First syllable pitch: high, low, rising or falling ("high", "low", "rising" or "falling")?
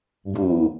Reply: low